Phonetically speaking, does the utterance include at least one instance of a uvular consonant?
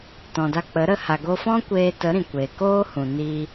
no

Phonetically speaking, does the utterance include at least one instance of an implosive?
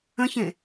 no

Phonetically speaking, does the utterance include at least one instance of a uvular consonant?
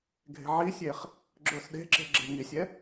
yes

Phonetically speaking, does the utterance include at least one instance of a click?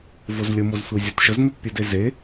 no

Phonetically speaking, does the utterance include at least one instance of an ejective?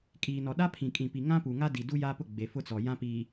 yes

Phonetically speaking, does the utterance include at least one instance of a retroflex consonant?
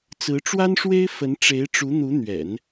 yes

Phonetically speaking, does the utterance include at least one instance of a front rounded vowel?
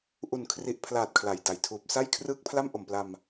no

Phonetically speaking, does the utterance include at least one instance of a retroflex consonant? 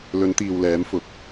no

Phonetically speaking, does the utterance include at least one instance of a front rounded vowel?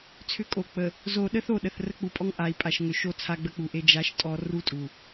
yes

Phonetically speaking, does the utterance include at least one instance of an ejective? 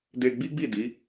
no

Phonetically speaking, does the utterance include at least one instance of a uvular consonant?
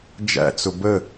no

